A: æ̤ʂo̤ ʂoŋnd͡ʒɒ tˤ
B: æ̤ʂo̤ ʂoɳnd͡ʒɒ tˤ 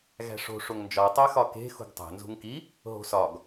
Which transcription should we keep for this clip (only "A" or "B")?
A